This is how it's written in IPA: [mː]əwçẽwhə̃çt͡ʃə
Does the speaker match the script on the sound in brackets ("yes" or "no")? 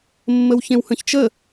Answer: yes